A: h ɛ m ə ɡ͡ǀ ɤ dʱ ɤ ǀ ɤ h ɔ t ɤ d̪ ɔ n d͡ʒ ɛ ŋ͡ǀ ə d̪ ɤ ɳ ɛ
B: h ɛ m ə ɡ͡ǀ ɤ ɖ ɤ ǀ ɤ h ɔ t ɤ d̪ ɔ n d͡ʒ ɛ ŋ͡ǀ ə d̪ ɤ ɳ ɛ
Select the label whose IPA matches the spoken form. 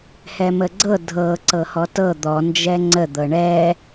A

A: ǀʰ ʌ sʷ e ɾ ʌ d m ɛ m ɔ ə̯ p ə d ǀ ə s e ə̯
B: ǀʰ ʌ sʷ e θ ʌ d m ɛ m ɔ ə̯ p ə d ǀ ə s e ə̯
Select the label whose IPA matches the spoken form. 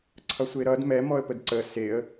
A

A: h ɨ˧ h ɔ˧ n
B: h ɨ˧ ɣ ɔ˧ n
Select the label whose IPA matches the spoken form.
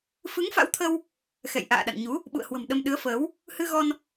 B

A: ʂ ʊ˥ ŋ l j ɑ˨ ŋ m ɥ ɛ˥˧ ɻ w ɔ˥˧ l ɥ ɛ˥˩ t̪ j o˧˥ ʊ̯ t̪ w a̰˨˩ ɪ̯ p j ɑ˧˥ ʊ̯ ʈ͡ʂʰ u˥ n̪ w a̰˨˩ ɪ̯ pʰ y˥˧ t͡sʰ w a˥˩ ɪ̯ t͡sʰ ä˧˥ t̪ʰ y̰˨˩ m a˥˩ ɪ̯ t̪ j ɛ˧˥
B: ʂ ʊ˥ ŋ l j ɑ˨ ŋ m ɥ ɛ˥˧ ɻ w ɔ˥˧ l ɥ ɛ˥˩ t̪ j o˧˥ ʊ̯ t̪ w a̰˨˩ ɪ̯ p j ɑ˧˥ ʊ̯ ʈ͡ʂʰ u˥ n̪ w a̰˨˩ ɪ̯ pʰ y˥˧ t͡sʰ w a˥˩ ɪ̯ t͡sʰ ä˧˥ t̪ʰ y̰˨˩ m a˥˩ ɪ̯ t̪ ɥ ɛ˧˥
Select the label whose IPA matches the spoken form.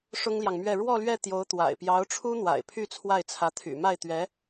B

